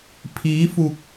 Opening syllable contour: rising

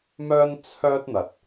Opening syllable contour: high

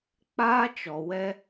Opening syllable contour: high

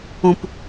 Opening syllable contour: low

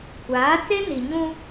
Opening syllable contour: rising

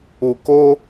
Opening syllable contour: low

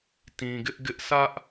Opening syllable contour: low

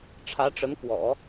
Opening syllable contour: rising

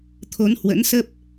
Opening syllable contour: rising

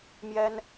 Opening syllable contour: high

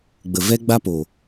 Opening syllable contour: low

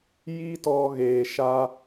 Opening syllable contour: high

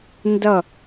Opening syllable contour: falling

